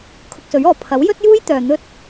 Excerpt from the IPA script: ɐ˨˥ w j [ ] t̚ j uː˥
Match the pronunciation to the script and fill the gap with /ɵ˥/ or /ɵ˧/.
ɵ˥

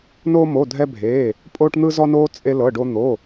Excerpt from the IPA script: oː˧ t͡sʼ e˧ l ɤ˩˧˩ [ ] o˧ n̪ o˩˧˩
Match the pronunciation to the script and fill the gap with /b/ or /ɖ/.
ɖ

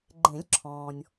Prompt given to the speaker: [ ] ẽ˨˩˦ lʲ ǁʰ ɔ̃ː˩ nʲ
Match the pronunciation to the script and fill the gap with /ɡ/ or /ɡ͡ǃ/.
ɡ͡ǃ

